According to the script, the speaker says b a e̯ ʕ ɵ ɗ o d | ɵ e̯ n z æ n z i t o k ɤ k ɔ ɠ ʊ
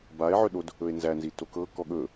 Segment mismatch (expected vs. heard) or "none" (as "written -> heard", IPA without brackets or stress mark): ʊ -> ɵ